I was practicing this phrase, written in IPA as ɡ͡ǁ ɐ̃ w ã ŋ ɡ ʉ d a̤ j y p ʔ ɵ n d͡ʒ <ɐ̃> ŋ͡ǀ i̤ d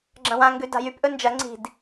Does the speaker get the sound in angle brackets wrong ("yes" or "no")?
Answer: yes